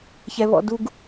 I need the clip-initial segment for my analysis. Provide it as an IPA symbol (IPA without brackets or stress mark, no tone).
ç